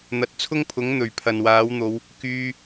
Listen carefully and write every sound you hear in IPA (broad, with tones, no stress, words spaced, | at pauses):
n̪ɐ˨˥t̚t͡sʰʊ˥ŋpʰʊ˨˥ŋ n̪ɵ˨˩ɥpʰɐ˨nwaː˨˥wn̪o˨˧w | kyː˧